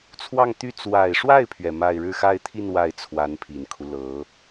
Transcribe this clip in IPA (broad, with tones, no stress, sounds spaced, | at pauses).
t͡sʰ w ɑ˥˧ ŋ t̪ y˥˩ t͡s w a˨˩ ɪ̯ ʂ w a˥˩ ɪ̯ pʰ ɥ ɛ˩ m a˥˧ ɪ̯ ɻ ɻ̩˥˧ x a˥˧ ɪ̯ t̪ʰ i˥˧ n w a˥˩ ɪ̯ t͡sʰ w a˧˥ n pʰ i˨˩ n kʰ u˦ l ɤ˧˥